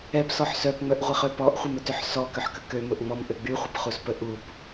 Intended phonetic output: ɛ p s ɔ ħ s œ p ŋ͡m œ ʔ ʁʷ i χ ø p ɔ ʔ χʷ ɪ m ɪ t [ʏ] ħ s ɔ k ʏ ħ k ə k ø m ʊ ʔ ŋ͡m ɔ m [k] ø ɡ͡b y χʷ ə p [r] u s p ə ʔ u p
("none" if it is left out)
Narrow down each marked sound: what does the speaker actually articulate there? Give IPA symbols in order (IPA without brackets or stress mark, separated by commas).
ʏ, ʔ, χ